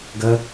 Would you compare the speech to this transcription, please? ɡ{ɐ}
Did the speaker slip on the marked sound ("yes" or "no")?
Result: no